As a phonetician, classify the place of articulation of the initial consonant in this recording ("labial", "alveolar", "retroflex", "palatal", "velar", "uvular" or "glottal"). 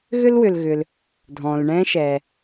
velar